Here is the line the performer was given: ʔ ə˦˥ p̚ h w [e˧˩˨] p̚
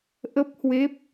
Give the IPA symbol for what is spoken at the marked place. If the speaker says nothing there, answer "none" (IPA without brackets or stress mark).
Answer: e˦˥